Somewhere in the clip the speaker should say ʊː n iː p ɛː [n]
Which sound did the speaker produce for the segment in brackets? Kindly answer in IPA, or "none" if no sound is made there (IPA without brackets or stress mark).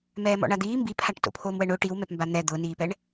ɳ